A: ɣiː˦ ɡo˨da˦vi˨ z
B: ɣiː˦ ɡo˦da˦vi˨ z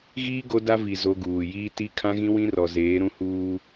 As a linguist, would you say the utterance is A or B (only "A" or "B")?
B